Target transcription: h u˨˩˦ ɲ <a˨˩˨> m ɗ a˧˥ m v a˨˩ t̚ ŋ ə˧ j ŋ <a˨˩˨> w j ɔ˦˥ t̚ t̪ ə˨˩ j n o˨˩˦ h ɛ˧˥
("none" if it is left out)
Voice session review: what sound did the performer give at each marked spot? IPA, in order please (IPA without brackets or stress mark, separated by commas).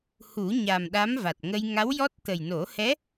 a˨˩, a˧˥